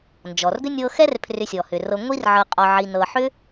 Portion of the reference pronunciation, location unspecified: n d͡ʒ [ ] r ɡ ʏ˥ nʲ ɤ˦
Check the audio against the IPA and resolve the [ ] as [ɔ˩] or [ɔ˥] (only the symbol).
ɔ˩